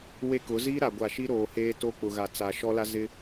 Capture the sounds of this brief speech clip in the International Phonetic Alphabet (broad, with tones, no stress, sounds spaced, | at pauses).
w e˦ k ʊ˨˦ z iː˦ ɾ a˨ ɡʷ a˨ ʃ i˦ ɾ oː˨ h eː˦ t o˦ k͡p ʊ˨ ɣ a˨ t͡s a˨ ʃ ɔ˦ l a˦ z ɪ˦